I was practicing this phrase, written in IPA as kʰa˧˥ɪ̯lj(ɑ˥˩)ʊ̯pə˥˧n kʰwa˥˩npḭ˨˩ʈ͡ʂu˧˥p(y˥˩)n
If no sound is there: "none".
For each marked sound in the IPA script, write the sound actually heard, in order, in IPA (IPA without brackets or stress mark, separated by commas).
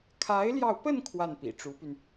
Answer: ɑ˧, y˧